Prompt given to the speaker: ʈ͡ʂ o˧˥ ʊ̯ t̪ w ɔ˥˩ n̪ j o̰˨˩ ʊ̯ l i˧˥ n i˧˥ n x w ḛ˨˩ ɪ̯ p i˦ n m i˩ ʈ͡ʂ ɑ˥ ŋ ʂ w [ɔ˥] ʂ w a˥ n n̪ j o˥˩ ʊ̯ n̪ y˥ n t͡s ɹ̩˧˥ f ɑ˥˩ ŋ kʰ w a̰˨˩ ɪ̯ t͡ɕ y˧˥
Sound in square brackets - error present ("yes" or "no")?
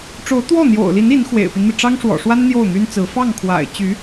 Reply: yes